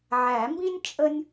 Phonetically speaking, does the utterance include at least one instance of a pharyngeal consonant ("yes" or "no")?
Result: yes